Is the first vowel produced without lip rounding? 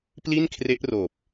yes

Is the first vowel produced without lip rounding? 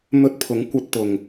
no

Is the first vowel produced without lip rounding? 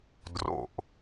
no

